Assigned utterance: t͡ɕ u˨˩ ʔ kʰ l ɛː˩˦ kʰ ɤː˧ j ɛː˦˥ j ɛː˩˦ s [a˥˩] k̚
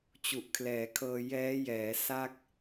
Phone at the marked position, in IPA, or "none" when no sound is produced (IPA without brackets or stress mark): a˥˩